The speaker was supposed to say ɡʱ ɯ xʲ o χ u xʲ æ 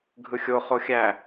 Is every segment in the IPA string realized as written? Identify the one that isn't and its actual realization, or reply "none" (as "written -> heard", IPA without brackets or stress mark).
u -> o